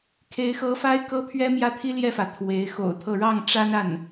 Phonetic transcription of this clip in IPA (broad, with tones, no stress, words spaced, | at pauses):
kʰe˧˥ɪ̯xɤ˧˥ fa˥ɪ̯kɤ˥pʰɥɛ˥ mjä˥˩t̪ʰi˥ljɛ˥˩fä˩ t̪ʰwe˧˥ɪ̯xo̰˨˩ʊ̯t̪ʰɤ˥˧ ɻɑ˥˩ŋʈ͡ʂa˥na˥˩n